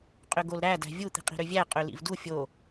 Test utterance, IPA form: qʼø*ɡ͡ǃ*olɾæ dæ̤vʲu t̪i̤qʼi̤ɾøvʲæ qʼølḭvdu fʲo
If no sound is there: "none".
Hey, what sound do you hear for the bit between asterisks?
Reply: ɡ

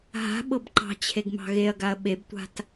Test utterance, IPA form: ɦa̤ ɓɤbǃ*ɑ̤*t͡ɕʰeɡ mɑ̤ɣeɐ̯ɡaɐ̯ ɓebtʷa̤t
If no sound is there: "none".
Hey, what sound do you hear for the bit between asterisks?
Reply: ɑ̤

